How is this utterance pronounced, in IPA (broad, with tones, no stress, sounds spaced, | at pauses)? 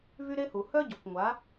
v y˦ ɾ e˦ h u˨ h œ˦ ɟ o˨ kʷ ŋʷ a˨˦